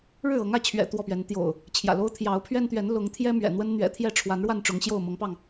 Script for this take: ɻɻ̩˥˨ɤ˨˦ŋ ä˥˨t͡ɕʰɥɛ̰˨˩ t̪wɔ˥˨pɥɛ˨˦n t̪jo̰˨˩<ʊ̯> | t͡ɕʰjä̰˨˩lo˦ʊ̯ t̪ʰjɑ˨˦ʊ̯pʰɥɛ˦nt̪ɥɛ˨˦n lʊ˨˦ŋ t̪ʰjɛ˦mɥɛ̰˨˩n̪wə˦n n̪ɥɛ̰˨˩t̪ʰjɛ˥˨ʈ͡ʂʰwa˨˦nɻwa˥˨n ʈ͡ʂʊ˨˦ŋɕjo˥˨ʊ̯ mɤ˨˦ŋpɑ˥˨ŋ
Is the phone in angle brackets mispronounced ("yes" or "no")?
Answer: no